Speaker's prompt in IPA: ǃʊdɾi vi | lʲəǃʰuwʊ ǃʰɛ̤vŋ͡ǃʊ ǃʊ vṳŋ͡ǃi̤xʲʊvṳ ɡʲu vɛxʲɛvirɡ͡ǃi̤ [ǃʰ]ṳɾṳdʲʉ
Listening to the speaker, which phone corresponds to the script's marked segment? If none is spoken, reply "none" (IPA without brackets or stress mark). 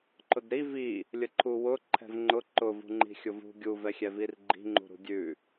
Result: ŋ͡ǃ